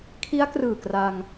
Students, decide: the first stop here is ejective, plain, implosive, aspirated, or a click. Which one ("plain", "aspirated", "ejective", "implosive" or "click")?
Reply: aspirated